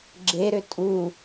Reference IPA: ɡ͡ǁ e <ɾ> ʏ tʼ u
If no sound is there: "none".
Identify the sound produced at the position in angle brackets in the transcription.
ɾ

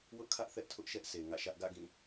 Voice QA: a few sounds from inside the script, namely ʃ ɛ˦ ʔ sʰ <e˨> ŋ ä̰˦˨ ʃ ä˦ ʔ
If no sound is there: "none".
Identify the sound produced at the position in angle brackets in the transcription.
e˨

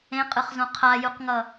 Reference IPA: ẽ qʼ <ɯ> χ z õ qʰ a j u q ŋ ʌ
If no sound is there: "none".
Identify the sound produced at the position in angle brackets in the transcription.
ɯ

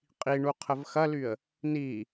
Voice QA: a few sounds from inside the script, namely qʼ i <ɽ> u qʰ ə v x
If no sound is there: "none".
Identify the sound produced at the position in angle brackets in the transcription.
ɳ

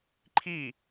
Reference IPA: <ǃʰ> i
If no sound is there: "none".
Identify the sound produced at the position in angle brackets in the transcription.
ǃʰ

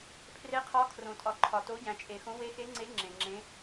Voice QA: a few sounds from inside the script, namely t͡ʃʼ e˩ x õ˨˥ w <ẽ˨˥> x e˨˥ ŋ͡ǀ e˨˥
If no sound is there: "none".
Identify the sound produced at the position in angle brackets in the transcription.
e˨˥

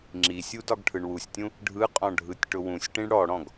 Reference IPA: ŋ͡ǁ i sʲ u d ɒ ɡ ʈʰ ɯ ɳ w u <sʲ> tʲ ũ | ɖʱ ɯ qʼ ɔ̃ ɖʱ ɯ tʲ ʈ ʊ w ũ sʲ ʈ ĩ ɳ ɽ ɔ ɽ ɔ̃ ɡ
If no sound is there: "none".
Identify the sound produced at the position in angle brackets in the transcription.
sʲ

